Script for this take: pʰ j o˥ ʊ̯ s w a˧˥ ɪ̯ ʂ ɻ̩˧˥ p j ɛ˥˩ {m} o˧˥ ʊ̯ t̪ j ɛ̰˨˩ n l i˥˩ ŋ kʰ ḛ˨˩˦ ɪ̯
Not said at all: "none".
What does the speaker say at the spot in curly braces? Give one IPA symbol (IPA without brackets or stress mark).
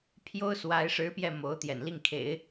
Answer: m